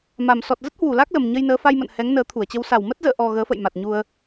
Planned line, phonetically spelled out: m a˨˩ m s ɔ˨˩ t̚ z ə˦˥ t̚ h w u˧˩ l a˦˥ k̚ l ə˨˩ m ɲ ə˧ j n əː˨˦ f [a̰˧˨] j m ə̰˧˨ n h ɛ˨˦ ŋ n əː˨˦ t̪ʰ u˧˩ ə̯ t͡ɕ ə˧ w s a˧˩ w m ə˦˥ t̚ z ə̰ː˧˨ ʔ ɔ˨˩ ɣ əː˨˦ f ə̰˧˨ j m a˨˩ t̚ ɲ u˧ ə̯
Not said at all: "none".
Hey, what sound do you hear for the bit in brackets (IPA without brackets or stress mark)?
a˧